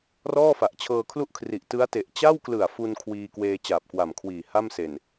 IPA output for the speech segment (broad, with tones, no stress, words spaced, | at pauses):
rɔː˥˩fa˨˩ʔ t͡ɕʰɤː˧kʰlu˥˩ʔkʰri˨˩ʔ tɯ˦˥a̯te˨˩ʔ t͡ɕa˥˩wklɯ˨˩a̯ fu˧n kʰwiː˧kweː˧ t͡ɕaː˨˩p̚kwa˨˩mkʰwiː˨˩ ha˥˩mse˨˩n